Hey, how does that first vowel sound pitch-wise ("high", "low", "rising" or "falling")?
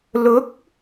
rising